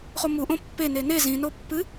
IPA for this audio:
χ o m u ʔ õ pː e n e n e z ĩ n o pː ɨ

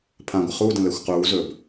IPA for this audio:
pʰ ã ɡʷ ə χ u d ə̃ l ɛ xʷ q uː z ɵː b

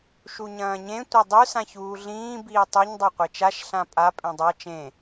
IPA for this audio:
ʃ u ɲ ɐ̃ː ɲ ẽ tʷ ɐ dˤ ʉ s ã ç uː ɮ ĩː b iː tˤ ʉ ɲ dˤ a qʷ e t͡ʃ a ʃ ɬ ã pʼ a pʼ ẽ dˤ a t͡ʃ ẽ

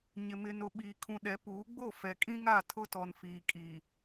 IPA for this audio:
ɲ ɪ˨ m ɪ˨ n ʊ˨ ɓ iː˨ kʰ ũ˨ ɗ ɛ˨˦ p uː˨˦ ɡ͡b o˦˨ f ɛ˨ kʼ ĩ˦ ŋ a˦˨ tʰ ʊ˦ t ɔ˨ n f iː˨ kʼ iː˨

